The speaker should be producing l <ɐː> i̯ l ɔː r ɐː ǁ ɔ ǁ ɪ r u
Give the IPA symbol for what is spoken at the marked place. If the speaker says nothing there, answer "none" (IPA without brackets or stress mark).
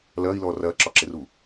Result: ɐː